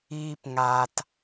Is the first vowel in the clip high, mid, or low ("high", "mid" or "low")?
high